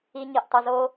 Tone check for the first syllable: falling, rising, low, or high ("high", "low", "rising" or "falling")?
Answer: low